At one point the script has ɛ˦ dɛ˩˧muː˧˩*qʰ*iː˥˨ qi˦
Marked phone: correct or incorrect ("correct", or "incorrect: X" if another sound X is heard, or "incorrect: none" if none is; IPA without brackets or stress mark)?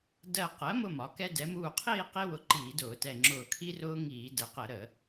correct